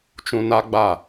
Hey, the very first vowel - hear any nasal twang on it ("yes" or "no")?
yes